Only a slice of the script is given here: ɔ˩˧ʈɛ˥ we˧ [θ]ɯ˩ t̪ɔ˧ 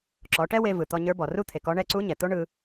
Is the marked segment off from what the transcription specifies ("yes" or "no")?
yes